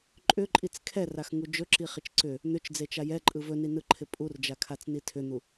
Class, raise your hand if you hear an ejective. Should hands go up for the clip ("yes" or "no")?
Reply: yes